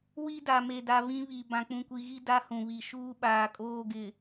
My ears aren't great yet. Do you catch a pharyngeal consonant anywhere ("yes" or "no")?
no